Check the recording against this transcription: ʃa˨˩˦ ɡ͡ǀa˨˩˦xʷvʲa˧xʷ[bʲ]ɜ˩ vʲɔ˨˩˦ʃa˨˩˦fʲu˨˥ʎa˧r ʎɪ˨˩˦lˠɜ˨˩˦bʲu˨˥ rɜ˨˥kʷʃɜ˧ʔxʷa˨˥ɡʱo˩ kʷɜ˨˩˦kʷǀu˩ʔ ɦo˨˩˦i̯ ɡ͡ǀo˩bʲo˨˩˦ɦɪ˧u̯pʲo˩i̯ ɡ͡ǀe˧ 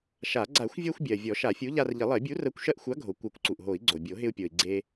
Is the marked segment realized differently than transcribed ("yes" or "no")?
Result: no